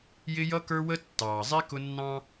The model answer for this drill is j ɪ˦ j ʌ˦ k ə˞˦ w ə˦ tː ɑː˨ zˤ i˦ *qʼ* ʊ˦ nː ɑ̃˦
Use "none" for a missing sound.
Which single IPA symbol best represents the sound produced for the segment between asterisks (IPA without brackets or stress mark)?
k